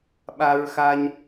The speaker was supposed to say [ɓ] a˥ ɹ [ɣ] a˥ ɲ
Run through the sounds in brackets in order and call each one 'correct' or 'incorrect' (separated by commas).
correct, incorrect